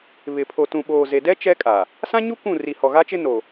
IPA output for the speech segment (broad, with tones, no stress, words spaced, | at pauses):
βɪ˨pʰo˨ tũ˨ɓoː˨ze˨dɛ˦ t͡ʃɛ˦kʼa˨ | sã˦ɲu˦ kʷũ˦˨ ri˨hɔ˨ɣa˦t͡ʃɪ˦ no˨